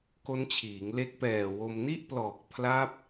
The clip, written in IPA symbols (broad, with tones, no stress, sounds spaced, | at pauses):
k o˦˥ n t͡ɕʰ iː˩˦ ŋ l e˦˥ k̚ p ɛː˨˩ w o˧ m n i˥˩ ʔ p l ɔː˨˩ k̚ pʰ l a˦˥ p̚